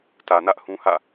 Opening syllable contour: low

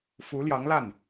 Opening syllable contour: rising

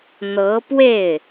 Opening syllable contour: rising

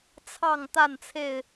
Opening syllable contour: falling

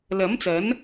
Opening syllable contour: rising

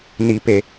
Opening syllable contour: low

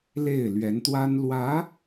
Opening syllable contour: falling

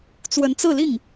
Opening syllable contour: rising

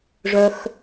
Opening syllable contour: high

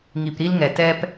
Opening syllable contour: low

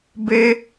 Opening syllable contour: high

